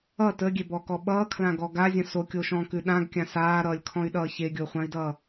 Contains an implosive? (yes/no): yes